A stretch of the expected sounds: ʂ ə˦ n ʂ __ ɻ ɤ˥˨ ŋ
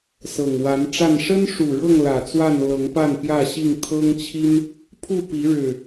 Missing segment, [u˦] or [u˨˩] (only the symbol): u˨˩